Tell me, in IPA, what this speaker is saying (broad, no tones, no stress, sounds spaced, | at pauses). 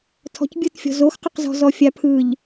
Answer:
tʰ ɔ̤ c bʲ ɯ t fʲ ɔ̤ z o x q ʊ q z ɔ̤ z ɔ fʲ a pʰ ɯ ʎ